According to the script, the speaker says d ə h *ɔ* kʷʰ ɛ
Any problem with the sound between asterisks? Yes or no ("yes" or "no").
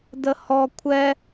no